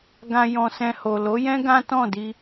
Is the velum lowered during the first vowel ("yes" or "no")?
yes